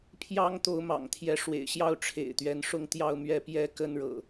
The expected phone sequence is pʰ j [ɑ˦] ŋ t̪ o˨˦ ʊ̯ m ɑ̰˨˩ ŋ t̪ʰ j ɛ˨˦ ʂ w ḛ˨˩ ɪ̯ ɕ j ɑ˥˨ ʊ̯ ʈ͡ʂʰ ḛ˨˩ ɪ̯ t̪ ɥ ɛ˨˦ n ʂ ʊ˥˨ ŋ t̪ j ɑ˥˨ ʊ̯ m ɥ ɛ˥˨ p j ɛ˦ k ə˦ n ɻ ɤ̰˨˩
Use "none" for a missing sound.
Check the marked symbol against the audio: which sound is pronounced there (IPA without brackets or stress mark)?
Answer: ɑ˦